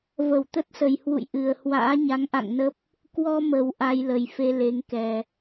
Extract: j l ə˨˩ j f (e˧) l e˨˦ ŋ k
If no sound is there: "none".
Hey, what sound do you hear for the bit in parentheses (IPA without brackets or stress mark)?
e˧